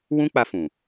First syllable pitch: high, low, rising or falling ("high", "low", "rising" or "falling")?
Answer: high